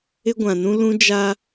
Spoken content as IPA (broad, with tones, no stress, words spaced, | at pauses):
ɪ˦ɡʷã˨nũ˦ lũ˦d͡ʒa˦